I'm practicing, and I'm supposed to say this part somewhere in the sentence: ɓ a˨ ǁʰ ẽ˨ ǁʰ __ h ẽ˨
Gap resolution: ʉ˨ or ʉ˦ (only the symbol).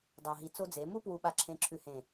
ʉ˨